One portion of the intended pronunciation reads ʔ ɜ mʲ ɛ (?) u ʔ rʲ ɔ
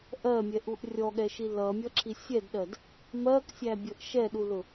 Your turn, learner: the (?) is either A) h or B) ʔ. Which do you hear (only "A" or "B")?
B